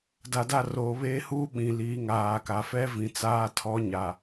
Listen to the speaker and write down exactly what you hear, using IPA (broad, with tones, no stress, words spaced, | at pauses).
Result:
da˨da˦˨roː˨ βeː˦huː˦ ɓĩ˨liː˨˦ ŋaː˨ ka˨fɛ˦vĩ˨ t͡saː˦tʰɔ˦ɲa˨